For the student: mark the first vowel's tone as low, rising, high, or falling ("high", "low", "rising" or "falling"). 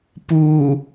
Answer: low